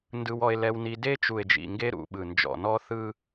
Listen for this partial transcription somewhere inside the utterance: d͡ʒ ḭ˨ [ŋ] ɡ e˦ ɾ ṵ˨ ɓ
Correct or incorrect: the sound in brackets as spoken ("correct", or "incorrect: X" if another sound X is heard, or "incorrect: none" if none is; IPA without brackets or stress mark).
correct